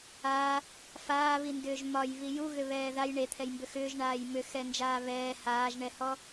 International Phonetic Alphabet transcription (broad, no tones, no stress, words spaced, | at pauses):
aː | faːβindʏːʒ mɒjβi juɣʏβɛː ðaj ɳet̪ʰɛjmbʏ xʏːʒɳaːj mʏxɛnd͡ʒaː βɛː haːʒɳɛhɔ